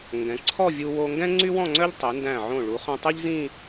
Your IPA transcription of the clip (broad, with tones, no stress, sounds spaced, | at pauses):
ŋ ɡ ɛ̃˩˧ ǀʰ ɔ˥˧ vʲ u˧ w o˧ ŋ ɡ ɛ̃˥ ŋ͡ǀ y˥ w ɔ̃˥˧ ŋ͡ǀ œ˥ ʎ tˤ i˩˧ n d æ̃˧˩ ʕ õ˧˩ ɭ u˩˧ χ œ̃˧ tˤ i˥ ʎ z ĩ˥˧